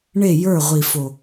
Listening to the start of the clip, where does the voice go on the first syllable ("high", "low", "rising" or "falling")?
falling